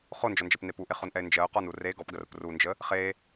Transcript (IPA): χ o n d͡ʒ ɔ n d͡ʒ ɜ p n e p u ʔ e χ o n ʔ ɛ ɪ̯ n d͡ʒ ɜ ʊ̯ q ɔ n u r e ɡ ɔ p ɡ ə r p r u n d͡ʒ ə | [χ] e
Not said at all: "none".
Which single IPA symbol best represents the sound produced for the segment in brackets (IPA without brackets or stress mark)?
χ